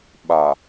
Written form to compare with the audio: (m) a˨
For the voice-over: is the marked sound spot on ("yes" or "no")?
no